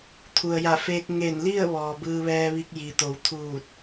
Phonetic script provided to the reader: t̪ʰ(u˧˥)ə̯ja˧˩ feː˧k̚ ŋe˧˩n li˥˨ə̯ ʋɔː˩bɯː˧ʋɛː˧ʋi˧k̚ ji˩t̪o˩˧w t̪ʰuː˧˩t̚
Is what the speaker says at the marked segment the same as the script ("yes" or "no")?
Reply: no